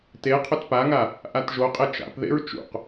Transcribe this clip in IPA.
t e qʰ ʏ t p a ŋ a | ʔ a t ʒ o qʼ e t͡ʃ a̰ p ð ḛ ɹ t͡ʃ ṵ q

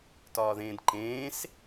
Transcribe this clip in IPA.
t ɒː ð ẽː d ǃ ẽː s

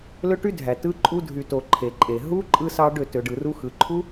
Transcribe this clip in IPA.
l ø˦ ʈ y˦ dʱ æ˨ t ɯ˧ ǃʼ u˧ dʱ y˨ t o˨ ǃʰ e˨ ǃʼ e˨ ɦ u˦ ǃʼ ɯ˦ s ɑ˦ ɖ ø˦˨ t ø˨ ɖ ɯ˨ r u˦ x ɯ˨ ǃʰ u˦

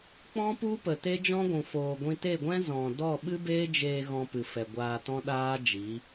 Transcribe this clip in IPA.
k͡p ɔ̃˦ p u˦ p ə˨ t e˦ d͡ʒ ɔ̃˦ ɡʷ ũ˨ f oː˨ ɡʷ ĩ˧ t e˦˨ ɡʷ ɛ̃˦ z ɔ̃˨ d ɔ˦˨ ɓ ɨ˦ b eː˦ d͡ʒ eː˧ ɣ ɔ̃˧ p ɨ˨ f ɛ˨ ɡʷ aː˧ t ɔ̃˦ ɗ aː˦ d͡ʒ i˨˦

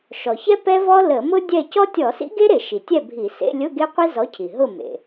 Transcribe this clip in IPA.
ʃ ɔ˩ ç ɛ˥ p ɛ˥ v ɔ˥ l ə˧˩˧ m ʊ˥ dʲ ɛ˥˨ c ɔ˥ tʲ ɔ˧˩˧ s ḭ˥ ɡ e˥ ɾ e˧˩˧ ʃ i˩ tʲ ɛ˥˨ bʱ i˧˩˧ s ḛ˧˥˧ lʲ ʊ˧˥˧ ɡ e˥ qʷ i˥ z ɔ˨˥ cʰ i˩ ɦ ʊ˥˨ m ḛ˩

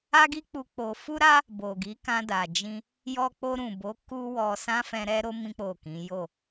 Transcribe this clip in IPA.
a˦ ɡ i˦ k͡p u˧ k͡p o˧ f u˦ ɾ a˦ | b o˨ ɡ i˨˦ k ã˧ d a˨ d͡ʒ ĩ˧ | j ɔ˧ k͡p o˧ ɾ ũ˨ b o˨˦ k u˦ w ɔ˧ s ã˦ f ɛ̃˧ ɾ ɛ˦ ɾ o˦ m ĩ˦ k͡p o˦˨ k ĩ˨˦ j o˦˨

